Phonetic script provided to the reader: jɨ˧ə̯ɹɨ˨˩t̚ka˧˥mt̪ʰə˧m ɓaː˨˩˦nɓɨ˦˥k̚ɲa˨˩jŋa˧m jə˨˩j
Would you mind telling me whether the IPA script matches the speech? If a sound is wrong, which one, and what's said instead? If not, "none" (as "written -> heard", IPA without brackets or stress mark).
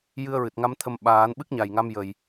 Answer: k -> ŋ